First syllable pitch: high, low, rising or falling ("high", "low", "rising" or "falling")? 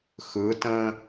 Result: rising